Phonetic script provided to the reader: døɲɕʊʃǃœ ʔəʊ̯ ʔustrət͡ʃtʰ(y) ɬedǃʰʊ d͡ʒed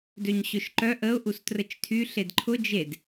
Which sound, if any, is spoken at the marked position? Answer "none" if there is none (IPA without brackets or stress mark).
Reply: y